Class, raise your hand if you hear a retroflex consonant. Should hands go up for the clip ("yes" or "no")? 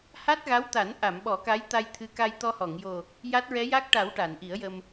yes